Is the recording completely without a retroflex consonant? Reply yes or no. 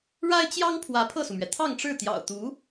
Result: no